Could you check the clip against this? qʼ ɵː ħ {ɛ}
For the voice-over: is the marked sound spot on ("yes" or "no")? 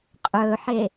no